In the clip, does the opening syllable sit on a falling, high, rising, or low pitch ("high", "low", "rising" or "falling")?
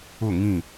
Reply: falling